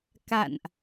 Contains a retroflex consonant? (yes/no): no